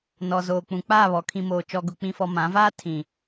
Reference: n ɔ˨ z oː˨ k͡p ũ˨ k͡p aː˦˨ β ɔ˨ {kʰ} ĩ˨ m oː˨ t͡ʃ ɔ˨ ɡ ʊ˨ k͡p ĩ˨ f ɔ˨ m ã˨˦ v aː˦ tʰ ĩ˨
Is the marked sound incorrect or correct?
correct